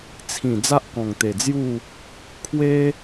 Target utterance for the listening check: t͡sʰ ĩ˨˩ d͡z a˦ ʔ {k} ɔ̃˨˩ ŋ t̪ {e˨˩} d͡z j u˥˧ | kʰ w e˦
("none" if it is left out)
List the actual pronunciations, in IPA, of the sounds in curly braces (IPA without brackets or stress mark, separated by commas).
k, e˨˩